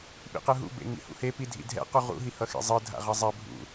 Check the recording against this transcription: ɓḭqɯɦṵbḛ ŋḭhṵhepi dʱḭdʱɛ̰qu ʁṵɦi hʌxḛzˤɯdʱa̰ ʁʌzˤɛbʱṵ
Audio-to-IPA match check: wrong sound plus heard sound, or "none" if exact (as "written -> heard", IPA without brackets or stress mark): none